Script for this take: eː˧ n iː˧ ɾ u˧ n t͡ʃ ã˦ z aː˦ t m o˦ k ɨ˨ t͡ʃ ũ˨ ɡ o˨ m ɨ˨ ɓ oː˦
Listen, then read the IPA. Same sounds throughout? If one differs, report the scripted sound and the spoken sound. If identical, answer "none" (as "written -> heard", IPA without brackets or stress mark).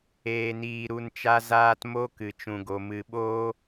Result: ã˦ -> a˦